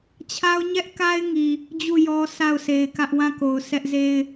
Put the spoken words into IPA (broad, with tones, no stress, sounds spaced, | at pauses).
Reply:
t͡ɕʰ a˦ ʊ̯ ɲ ɛ˦ ʔ k a˦ ɪ̯ ŋ i˨ | d͡ʑ u˦˨ j ɔ˦ sʰ a˦˨ ʊ̯ sʰ e˨ ɪ̯ k ä˦ ʔ w ã˦˨ k o˨ ʊ̯ s ɛ˦ ʔ z e˦ ɪ̯